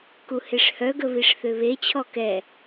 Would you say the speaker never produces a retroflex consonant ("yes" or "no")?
no